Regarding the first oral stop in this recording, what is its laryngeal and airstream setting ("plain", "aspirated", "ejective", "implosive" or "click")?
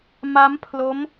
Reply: aspirated